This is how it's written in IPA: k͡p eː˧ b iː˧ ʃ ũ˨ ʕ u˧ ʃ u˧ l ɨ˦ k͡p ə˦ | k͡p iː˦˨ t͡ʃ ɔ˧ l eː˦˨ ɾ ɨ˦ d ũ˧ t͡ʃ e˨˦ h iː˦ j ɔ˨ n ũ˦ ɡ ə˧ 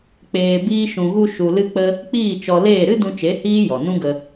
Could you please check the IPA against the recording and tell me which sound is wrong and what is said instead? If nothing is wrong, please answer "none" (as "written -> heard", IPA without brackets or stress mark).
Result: ʕ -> ɣ